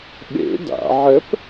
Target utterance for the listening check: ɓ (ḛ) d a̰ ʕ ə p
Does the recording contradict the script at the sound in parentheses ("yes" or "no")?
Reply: no